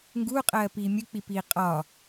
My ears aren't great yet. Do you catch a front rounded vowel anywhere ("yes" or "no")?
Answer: no